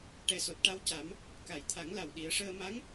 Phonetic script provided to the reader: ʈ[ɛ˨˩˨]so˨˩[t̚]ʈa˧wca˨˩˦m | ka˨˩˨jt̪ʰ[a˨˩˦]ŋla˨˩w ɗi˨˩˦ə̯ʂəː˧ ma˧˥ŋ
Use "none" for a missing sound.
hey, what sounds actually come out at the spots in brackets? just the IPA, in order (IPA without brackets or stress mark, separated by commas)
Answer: ɛ˨˩, t̚, a˨˩˦